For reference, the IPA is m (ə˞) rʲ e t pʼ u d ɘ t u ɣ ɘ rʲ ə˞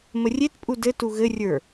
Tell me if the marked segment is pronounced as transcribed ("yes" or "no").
no